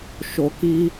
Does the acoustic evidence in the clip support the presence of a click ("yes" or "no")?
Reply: no